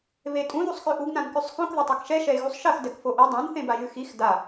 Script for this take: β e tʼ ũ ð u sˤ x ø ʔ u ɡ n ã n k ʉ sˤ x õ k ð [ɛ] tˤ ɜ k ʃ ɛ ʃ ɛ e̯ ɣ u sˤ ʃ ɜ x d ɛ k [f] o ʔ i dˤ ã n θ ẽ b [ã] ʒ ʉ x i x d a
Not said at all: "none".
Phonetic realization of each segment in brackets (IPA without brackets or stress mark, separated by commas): ɛ, f, a